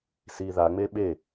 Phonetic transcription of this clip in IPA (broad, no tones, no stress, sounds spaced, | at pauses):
s i ð a ŋ͡m e ɓ e